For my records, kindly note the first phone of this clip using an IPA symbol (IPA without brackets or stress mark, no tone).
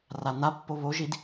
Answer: r